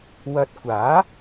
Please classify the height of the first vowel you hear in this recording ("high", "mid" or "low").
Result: low